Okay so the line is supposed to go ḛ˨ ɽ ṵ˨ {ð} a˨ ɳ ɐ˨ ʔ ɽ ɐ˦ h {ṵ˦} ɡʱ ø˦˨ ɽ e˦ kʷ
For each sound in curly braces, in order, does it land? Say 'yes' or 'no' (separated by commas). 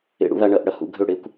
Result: yes, no